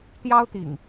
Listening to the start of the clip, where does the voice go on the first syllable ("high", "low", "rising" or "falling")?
high